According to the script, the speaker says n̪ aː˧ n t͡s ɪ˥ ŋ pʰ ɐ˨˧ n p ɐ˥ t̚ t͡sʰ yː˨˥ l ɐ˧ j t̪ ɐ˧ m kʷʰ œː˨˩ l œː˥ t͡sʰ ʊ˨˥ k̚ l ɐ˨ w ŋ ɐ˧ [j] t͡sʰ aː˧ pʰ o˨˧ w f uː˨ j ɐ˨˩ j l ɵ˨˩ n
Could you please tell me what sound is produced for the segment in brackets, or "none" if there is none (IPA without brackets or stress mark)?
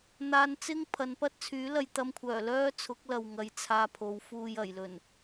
j